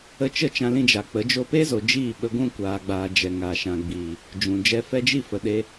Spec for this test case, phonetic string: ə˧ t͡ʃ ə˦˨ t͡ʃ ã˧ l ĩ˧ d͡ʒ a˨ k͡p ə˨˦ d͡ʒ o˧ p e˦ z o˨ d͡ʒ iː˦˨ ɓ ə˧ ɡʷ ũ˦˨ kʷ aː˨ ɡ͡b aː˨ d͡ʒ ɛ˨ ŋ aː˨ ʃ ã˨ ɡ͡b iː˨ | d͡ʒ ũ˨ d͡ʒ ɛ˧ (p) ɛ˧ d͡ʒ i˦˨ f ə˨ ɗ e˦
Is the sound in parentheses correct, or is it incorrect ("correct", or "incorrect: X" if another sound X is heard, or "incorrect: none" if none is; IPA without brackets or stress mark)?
incorrect: f